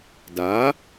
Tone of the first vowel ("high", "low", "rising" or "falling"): rising